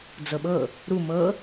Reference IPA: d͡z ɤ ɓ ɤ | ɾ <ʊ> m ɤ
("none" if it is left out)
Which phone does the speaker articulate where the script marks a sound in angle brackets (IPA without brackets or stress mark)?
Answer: u